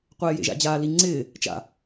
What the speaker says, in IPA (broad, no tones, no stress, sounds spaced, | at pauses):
qʷ eː j ḛ ʒ a̰ d͡ʑ aː l i ŋ͡ǀ ɪː | t͡ʃ a̰